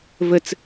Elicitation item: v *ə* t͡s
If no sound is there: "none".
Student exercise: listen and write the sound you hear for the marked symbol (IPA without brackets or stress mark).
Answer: ə